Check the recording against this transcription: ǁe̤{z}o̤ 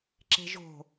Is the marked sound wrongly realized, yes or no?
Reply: yes